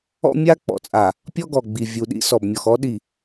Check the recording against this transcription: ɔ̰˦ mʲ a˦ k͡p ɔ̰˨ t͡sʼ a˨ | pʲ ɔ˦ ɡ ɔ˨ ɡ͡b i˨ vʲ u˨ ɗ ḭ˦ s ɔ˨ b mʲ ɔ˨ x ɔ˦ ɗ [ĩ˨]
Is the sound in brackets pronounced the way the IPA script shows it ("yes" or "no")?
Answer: no